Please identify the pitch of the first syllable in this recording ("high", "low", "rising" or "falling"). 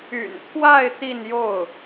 low